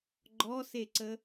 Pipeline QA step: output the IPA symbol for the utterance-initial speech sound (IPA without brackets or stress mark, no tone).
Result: ɡ͡ǃ